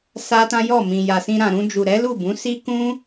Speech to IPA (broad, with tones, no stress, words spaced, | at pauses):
sa˦tã˦jɔ˦˨ mĩ˨ja˨sĩ˧ ɾã˨ɾũ˧d͡ʒu˨ɾɛ˨˦ lu˦˨bũ˨˦si˦ kũ˦